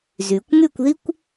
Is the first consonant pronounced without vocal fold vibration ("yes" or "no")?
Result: no